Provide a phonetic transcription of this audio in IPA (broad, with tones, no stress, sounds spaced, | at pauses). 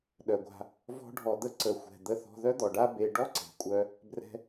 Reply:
ɗ œ˨ ɡʷ a̤˧ | v ɔ̤˦ ɖʱ ɔ˧ d̪ ə˦ ǀ ə˧ xʷ ɛ̤˧ d̪ ə˧ θ ɔ̤˧ ð œ˦ d̪ ɔ˨ ɖ a˦ b e˧ ɖ ɔ˦ ǀ e̤˨ kʷʼ œ˧ | b r ɛ̤˦